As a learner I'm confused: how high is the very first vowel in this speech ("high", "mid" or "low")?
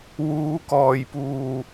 high